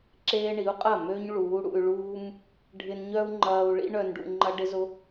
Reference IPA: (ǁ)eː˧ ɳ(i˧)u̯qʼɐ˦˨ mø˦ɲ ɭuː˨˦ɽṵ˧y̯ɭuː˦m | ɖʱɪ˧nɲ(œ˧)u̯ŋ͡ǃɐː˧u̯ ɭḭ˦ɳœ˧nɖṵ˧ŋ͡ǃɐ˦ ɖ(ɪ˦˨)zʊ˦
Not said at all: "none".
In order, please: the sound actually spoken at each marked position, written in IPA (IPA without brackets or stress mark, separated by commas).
ǁ, i˨˦, œ˦, ɪ˦